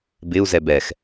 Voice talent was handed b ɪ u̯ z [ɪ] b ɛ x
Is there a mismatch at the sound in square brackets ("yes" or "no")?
yes